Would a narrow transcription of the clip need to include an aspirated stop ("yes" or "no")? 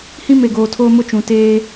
yes